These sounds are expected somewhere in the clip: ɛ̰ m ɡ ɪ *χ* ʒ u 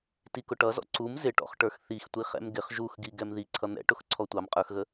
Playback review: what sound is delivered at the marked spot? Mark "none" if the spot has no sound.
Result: χ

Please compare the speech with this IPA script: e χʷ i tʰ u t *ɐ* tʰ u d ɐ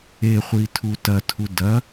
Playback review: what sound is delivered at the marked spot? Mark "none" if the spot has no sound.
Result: ɐ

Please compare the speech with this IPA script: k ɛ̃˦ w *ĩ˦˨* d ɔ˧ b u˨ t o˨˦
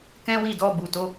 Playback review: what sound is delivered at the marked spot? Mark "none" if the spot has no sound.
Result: i˦˨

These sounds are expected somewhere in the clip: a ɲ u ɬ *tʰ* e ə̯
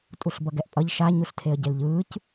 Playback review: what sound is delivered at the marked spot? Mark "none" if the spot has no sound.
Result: tʰ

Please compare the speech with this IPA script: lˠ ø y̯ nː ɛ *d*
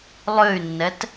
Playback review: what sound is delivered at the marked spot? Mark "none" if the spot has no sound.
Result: t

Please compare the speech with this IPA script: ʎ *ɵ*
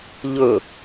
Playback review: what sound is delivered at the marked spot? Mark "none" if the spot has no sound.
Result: ɵ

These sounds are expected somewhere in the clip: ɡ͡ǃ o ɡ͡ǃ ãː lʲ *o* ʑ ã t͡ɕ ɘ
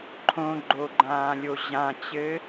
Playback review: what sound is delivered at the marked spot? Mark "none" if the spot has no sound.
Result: o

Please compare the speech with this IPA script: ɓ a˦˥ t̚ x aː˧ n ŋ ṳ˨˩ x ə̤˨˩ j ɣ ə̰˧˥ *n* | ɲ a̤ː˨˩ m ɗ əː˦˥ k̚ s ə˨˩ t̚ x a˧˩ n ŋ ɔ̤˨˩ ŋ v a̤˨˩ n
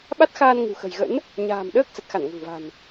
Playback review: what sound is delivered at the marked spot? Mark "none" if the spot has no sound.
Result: n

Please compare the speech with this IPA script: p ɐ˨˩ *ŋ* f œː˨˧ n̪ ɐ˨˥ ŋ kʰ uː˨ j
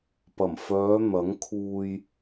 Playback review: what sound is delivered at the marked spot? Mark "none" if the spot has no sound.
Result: m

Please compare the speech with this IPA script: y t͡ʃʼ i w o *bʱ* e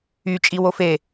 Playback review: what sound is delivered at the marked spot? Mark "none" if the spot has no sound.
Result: f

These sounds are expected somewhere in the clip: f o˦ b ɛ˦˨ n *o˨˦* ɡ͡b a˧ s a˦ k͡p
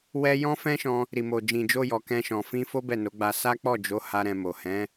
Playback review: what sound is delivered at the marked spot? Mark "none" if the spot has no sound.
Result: o˨˦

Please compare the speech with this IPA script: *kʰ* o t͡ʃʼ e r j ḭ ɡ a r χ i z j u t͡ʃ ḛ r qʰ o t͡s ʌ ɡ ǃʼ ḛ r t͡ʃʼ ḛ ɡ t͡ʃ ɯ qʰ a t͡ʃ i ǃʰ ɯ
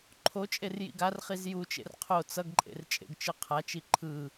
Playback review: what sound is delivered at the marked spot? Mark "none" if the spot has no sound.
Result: ǃʰ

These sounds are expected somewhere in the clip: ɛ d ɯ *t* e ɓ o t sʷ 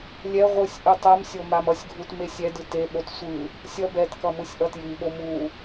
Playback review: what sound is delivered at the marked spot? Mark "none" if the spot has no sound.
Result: t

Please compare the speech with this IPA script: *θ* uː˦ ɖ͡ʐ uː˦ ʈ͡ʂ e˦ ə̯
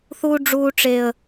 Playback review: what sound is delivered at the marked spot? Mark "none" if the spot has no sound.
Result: θ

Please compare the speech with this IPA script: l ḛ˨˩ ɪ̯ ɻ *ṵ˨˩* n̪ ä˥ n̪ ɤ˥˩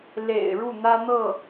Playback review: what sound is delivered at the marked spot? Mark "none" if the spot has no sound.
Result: u˥˩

